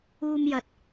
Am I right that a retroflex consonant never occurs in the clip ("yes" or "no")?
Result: yes